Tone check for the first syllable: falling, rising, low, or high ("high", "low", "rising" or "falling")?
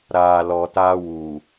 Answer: low